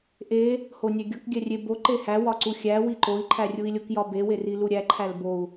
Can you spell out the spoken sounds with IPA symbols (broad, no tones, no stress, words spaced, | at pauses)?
ʔe | honʲæɡʲɒk ɡʲærʲe bo ǃehæ wɒǀuxʲæ wiǃoi̯ ǃʰærʲui̯lʲok jɒbe weriluɾʲæ ǃʰælbou̯